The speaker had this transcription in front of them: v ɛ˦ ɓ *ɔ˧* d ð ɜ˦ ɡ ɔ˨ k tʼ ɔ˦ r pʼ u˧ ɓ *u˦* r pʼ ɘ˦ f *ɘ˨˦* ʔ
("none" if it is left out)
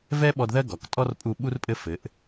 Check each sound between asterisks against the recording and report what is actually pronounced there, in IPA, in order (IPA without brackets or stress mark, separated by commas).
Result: ɔ˧, u˦, ɘ˨˦